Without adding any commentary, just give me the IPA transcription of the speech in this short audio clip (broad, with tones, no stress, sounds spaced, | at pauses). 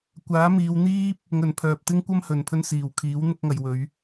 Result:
kʷ aː˨˥ m iː˨˧ w n̪ iː˥ p̚ | ŋ ɵ˨˩ n pʰ œː˨ p̚ t̪ ɪ˥ ŋ kʷ ɐ˥ m h ɵ˨ n pʰ ɵ˧ n s iː˨˩ w kʰ iː˨˥ w n̪ ʊ˧ k̚ ŋ ɐ˨ j w ɵ˨˧ ɥ